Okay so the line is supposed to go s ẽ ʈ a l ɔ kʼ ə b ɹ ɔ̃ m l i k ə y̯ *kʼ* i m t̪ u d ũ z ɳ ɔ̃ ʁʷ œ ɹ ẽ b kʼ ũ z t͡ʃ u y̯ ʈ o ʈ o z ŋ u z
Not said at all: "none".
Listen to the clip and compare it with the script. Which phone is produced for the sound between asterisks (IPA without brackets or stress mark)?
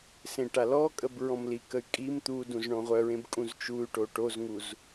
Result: kʼ